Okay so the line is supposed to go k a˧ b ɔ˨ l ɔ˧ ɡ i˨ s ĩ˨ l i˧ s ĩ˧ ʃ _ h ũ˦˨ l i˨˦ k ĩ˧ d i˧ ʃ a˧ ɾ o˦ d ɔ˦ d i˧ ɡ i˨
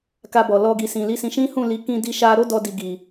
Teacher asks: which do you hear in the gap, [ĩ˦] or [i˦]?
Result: ĩ˦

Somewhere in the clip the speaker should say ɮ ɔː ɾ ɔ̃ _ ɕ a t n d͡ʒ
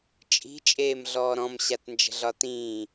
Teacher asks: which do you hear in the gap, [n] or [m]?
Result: m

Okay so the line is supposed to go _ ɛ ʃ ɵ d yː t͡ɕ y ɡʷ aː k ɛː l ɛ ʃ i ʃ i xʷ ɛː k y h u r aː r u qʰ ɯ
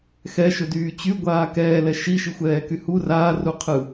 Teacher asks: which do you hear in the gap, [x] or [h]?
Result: x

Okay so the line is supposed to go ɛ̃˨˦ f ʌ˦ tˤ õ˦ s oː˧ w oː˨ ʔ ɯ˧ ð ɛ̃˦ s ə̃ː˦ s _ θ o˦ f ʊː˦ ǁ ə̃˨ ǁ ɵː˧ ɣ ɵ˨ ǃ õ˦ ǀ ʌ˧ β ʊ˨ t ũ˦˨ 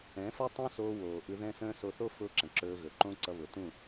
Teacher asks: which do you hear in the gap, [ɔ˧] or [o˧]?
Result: o˧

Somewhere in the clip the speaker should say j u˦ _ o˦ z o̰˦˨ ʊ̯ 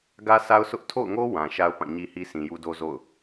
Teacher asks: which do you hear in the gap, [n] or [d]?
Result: d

